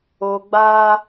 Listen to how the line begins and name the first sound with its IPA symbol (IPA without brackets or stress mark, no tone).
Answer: o